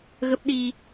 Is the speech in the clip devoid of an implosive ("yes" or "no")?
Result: no